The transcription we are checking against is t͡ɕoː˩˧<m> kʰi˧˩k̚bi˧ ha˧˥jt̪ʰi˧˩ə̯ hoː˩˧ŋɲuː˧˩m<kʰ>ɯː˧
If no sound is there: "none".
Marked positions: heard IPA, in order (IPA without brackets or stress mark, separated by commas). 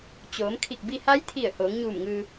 m, ŋ